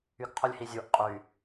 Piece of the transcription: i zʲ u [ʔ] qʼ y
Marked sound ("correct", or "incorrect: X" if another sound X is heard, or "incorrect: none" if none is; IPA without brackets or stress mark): correct